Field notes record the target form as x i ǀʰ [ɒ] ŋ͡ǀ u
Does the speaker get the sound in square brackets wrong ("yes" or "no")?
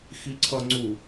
yes